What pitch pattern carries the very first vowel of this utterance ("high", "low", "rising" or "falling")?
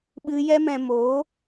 high